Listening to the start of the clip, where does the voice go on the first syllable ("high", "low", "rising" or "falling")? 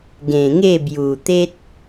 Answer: low